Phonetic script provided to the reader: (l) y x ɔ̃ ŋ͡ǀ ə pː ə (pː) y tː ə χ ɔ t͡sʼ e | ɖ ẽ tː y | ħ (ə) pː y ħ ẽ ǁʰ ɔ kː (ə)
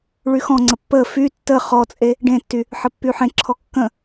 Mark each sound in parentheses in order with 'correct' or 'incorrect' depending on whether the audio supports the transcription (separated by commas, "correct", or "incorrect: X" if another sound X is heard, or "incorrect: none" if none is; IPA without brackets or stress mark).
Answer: incorrect: ɭ, incorrect: f, correct, incorrect: ə̃